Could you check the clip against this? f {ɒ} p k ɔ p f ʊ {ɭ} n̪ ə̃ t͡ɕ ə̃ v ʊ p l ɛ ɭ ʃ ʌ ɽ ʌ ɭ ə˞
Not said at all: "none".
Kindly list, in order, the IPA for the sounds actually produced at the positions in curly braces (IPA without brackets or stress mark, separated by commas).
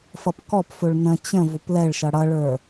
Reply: ʌ, ɭ